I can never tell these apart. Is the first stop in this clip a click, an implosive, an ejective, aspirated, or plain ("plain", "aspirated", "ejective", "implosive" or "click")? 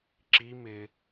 click